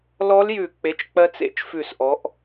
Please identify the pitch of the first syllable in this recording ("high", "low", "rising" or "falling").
rising